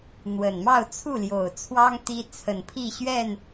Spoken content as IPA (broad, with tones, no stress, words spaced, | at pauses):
n̪wə˨˩n mɑ˥˨ʊ̯t͡sʰu˥˨ljo˨˩ʊ̯t͡sʰwɑ˦ŋ t̪i˦ t͡sʰə˨˩npʰi˥˨ɕɥɛ˥˨n